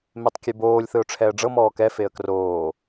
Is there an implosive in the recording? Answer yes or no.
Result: no